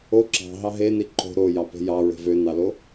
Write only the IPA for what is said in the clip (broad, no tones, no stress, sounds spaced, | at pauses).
o ǁ ɑ̤ ɦ ɑ ɦ e n i ǃ o̤ ɾ o j ɑ p e̤ j ɑ ɹ e̤ v ø n ɑ l o